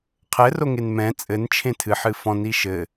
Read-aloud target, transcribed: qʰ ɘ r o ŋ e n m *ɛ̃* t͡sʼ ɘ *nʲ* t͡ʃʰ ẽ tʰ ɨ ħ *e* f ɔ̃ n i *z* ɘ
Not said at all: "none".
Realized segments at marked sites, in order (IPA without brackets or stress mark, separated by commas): ɛ̃, n, ɨ, ʃ